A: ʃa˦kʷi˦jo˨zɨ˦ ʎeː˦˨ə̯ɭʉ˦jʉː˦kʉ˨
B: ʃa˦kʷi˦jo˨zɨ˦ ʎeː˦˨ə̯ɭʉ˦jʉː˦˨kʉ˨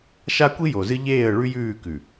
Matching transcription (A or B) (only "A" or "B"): B